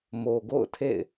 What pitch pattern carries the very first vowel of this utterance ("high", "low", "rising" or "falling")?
low